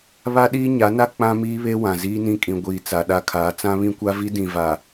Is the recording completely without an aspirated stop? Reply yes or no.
no